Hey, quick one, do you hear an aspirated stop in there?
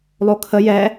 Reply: yes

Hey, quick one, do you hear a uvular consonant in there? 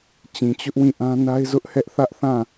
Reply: no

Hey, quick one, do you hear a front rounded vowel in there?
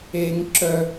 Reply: yes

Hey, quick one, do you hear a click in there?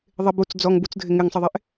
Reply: no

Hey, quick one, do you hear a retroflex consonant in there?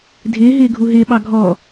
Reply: no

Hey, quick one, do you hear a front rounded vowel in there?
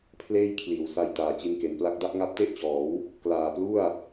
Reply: no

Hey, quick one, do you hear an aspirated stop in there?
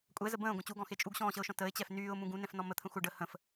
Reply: yes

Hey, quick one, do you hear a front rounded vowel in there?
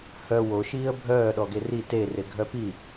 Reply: yes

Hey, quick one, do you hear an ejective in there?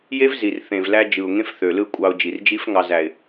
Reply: yes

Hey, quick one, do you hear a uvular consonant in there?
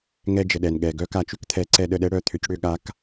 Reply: no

